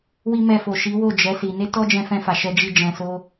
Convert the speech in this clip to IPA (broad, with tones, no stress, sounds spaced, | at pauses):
w i˦ m ɛ˧ f o˨ ʃ i˨˦ w o˦˨ d͡ʒ ɛ˨˦ s i˧ n e˦ t ɔ˦ d͡ʒ ɛ̃˧ f ɛ̃˧ f a˨ ʃ ɛ˧ d͡ʒ i˦ d͡ʒ ɛ̃˧ s o˦